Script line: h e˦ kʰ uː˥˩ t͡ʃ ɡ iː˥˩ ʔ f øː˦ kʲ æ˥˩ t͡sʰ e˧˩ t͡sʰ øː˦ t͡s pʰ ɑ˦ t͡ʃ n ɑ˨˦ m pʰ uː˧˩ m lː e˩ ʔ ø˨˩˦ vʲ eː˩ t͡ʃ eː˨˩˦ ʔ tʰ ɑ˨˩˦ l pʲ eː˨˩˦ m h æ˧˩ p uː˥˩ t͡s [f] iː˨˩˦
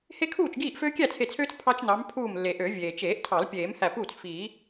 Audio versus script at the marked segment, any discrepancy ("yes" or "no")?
no